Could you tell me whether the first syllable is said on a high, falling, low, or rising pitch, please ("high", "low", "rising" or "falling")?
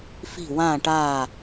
falling